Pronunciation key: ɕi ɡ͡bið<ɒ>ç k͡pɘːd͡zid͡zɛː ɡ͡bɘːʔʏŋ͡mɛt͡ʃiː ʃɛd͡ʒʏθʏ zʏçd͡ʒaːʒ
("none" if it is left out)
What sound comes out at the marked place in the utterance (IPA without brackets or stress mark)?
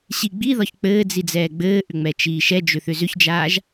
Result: ɒ